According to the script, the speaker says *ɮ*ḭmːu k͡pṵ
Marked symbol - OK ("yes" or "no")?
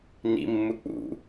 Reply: no